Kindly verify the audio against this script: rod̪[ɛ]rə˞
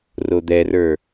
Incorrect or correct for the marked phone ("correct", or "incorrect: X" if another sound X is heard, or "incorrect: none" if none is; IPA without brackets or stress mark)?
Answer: correct